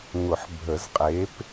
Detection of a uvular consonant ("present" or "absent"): present